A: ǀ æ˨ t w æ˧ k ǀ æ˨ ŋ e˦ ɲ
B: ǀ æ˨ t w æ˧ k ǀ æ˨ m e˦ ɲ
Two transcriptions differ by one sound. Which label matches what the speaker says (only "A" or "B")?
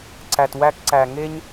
A